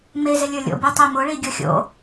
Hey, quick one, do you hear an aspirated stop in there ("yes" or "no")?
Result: no